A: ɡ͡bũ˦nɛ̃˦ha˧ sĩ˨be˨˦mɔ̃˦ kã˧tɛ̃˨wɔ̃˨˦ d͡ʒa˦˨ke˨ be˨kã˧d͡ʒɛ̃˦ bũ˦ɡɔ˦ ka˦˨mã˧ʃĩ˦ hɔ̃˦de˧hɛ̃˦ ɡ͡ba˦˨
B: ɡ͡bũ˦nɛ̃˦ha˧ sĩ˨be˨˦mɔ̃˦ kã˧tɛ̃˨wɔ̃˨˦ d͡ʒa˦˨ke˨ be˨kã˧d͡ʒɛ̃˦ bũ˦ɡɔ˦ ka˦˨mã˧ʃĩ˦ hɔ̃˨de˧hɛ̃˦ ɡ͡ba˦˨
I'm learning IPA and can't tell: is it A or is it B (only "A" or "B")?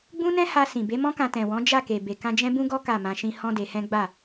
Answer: A